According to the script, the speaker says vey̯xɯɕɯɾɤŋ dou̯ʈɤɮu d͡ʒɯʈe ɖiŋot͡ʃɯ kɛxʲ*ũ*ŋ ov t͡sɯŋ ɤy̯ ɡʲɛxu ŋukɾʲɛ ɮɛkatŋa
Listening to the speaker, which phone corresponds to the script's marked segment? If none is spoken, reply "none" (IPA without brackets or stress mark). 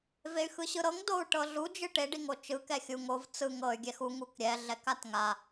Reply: u